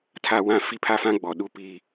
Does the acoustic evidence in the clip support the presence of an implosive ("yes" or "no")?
yes